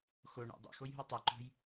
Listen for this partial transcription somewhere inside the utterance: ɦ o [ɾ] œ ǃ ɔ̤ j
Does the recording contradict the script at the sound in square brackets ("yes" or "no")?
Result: yes